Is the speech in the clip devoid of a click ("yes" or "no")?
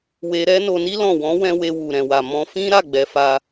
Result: yes